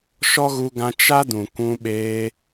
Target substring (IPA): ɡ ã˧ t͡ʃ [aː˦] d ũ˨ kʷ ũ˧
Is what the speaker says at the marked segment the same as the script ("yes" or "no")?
no